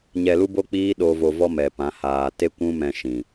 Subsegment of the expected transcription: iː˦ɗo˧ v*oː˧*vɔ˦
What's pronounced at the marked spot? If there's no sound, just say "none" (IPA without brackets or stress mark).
o˧